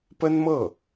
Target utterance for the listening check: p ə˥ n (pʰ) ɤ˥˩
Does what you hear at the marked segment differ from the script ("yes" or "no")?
yes